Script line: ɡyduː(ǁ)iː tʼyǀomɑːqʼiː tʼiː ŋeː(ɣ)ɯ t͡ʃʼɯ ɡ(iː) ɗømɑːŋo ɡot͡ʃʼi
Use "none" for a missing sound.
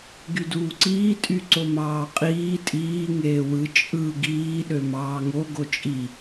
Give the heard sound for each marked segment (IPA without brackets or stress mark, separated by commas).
ǀ, w, iː